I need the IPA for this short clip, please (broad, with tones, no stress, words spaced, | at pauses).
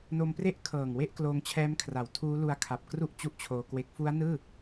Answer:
no˧mpre˥˩ʔkʰɤː˨˩ŋ we˥˩ʔkloː˧ŋt͡ɕʰɛː˦˥mkʰra˩˦w tʰuː˦˥lu˧a̯ kʰa˨˩p̚kru˥˩ʔ t͡ɕu˥˩ʔt͡ɕʰoː˧kwe˦˥k̚ fu˦˥a̯nɯː˥˩